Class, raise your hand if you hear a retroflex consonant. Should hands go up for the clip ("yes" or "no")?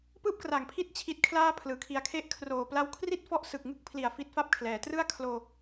no